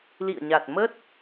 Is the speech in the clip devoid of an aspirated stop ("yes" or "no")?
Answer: yes